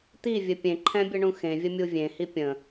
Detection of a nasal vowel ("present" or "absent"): present